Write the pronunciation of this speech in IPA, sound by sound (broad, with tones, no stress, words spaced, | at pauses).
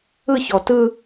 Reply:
ɯ˦˨çɔ˨tɯ˦